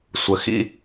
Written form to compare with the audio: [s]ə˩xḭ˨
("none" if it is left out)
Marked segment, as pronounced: sʷ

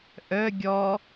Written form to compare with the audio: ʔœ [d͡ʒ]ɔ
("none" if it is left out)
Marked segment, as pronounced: ɡʲ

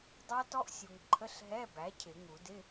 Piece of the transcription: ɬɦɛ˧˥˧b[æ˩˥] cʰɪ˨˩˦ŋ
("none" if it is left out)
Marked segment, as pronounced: æ˩˥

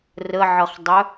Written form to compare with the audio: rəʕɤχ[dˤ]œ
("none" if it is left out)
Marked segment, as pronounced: dˤ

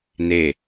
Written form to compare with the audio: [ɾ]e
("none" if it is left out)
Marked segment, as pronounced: n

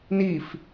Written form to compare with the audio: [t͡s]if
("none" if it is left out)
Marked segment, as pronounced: n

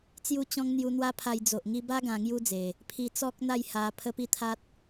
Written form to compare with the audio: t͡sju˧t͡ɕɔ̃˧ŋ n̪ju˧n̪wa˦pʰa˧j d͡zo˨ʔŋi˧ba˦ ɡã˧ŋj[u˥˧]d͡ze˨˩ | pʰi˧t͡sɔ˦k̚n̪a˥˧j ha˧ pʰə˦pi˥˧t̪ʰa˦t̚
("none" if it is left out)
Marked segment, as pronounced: u˦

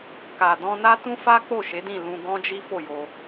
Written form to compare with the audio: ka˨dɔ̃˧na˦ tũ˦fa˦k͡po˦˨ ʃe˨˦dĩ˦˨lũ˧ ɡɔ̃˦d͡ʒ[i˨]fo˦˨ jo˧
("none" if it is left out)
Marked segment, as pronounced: i˦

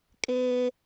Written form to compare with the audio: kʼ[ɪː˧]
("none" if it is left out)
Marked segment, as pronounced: ɪː˧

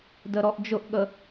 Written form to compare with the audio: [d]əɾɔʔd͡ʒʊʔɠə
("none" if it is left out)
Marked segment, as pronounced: d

